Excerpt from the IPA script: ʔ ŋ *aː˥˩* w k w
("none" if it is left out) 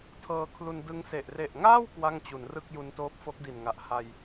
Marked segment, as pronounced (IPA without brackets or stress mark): aː˥˩